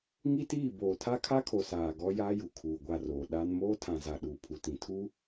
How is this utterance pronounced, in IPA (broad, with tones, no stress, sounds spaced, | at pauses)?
ŋ i˦ t iː˦˨ b oː˨ tʰ a˦ kʰ a˦ kʰ o˨ s aː˨ ɡ ɔ˦ j aː˦ j u˨ kʰ uː˨ ɡʷ a˦˨ r oː˨ ɗ a˦ n m oː˦ tʰ ã˨ z a˨ ɗ uː˨ pʰ u˨ t ĩ˨ tʰ u˦